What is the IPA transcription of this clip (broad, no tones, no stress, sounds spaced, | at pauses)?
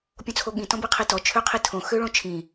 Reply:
pʲ õ t͡sʰ o ɠ ĩ t ɔ̃ b i qʰ i t ɔ t͡ʃʰ ø qʰ i tʰ õ x ø ɭ õ t͡ʃʰ ĩ